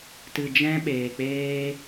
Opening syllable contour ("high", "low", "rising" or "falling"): low